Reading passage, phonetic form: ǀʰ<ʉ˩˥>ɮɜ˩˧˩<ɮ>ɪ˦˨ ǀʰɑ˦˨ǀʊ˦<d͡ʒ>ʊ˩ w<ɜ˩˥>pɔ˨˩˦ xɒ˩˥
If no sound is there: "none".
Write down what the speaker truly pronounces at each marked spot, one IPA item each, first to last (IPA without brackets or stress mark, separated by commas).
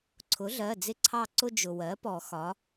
ʊ˩˥, d͡z, d͡ʒ, ɜ˩˥